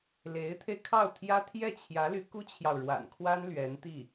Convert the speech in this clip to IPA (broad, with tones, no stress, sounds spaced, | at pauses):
l e˧˥ ɪ̯ t̪ʰ e˧ ɪ̯ kʰ ɑ˥˩ ʊ̯ t̪ʰ j ä˥ t̪ʰ j ɛ˥˩ t͡ɕʰ j ä˧˥ l y˧˥ k u˥ t͡ɕʰ j ɑ˨ ʊ̯ ɻ w a̰˨˩ n kʰ w a˥ n l ɥ ɛ˧˥ n t̪ i˥˩